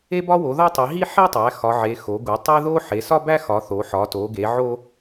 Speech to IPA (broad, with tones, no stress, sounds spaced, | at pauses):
e˦ b ɒ˦ w o˩˧ ð ɒ˦ tˤ i˩˧ ɦ i˦ ħ e˦ tˤ æ˩˧ x ɒ˩˧ ʕ e˩˧ x o˩˧ ɡ u˩˧ tˤ e˦ ð o˦ ħ e˩˧ s ɒ˦ b æ˦ x ɒ˩˧ θ o˩˧ ħ ɒ˩˧ t o˩˧ ɡ e˩˧ ʕ o˦